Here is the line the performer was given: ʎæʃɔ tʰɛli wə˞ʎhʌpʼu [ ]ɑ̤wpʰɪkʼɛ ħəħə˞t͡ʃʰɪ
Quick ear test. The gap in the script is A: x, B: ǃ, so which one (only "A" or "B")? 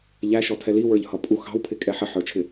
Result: A